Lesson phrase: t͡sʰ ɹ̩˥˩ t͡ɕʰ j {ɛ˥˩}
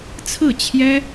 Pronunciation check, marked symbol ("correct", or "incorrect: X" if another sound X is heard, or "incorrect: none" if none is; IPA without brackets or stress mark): incorrect: ɛ˥